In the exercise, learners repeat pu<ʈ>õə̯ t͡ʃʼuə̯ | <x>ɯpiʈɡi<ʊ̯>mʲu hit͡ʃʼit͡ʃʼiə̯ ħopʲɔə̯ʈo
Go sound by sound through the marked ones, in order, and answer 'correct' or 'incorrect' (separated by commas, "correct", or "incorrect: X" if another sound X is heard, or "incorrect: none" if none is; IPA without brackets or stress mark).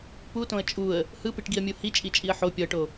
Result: incorrect: t, incorrect: h, incorrect: ə̯